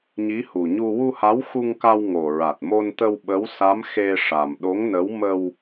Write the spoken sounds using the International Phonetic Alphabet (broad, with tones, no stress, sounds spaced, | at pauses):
ɲ i˧˥ h u˨˩ ɲ u˧ w u˧ h a˧˥ w x u˧ ŋ k a˧ w ŋ o˨˩ ɹ a˨˩ t̚ m o˧ n t̪ ə˧ w ɓ ə˧˥ w s a˧˥ m x e˧ ʂ a˨˩ m ɗ o˧˥ ŋ n ə˧˥ w m ə˧ w